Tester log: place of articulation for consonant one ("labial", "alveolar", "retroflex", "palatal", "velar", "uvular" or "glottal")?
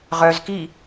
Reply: uvular